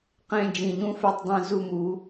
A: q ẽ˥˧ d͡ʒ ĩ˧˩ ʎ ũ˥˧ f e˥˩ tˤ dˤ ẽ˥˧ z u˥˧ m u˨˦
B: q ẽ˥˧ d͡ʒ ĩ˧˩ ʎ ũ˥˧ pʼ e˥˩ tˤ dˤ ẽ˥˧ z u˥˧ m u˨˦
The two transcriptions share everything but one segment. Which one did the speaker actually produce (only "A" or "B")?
A